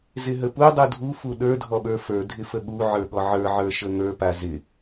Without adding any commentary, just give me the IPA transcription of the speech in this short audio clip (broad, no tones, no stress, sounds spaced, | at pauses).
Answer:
z ɪ ɦ ə p u dˤ u dʱ u f u ɗ ə˞ dʱ ɔ ɓ ə˞ f ə˞ dʱ ɪ f ə ɠ u ʕ ə˞ ɠ ɔ ʕ ə˞ ʕ ə˞ ʃ ə ŋ ə˞ p a z ɪ